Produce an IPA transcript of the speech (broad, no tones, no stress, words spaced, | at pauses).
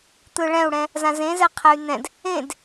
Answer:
t̪ɯɭɛ̃u̯ɽɛ̃ | zãzẽzɛ qʰɛy̯n̪ɛ̃d | ẽd